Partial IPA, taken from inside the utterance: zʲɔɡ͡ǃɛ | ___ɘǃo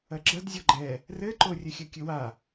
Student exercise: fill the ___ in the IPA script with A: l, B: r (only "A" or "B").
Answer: B